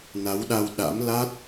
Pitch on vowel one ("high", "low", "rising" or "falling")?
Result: rising